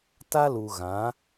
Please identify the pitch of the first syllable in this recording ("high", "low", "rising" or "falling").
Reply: high